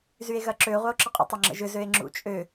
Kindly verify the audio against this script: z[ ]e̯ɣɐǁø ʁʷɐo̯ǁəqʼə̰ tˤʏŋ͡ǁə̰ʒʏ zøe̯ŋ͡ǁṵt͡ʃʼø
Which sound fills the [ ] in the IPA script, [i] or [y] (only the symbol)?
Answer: y